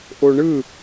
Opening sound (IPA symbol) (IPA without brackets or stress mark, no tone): ʔ